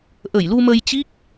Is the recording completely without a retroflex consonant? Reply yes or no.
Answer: yes